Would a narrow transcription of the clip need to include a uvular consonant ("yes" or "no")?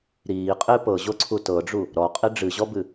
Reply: yes